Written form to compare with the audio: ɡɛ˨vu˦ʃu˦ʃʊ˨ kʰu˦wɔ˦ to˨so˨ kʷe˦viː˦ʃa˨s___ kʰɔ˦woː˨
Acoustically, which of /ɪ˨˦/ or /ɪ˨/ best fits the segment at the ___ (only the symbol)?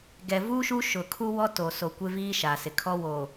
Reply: ɪ˨